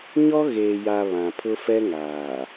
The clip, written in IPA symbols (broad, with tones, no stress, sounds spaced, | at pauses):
ɲ ɔ˦ ɣ eː˨ j a˨ β ã˨ pʰ ʊ˦ f ɛ˦ ŋ aː˨